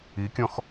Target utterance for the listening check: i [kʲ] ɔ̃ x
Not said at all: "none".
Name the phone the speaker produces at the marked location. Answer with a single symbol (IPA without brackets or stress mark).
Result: kʲ